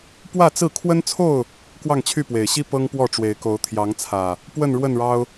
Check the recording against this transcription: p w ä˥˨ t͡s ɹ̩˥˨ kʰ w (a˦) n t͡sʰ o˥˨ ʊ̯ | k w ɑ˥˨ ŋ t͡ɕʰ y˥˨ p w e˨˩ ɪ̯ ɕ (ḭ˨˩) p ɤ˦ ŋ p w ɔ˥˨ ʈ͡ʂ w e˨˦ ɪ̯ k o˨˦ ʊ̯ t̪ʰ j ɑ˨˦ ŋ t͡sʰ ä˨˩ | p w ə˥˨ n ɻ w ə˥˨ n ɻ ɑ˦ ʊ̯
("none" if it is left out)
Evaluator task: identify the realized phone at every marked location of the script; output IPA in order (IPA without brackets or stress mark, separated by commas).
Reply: ə˦, i˦